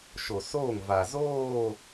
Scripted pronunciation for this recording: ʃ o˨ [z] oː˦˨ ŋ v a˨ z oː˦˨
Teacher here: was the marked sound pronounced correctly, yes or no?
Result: no